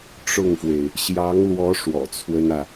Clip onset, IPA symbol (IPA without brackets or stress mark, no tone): ʈ͡ʂ